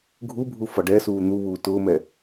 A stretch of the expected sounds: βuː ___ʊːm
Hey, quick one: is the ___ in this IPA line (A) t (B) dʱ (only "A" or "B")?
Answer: A